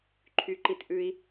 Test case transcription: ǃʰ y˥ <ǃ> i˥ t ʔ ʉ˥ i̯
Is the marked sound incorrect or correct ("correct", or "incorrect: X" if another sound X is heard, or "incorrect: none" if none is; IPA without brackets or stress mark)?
correct